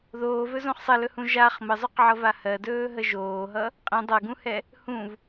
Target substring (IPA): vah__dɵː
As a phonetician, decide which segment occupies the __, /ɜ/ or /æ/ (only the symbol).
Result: ɜ